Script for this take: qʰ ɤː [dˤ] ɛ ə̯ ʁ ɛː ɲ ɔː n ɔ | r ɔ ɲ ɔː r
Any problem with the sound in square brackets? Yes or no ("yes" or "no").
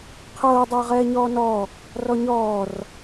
no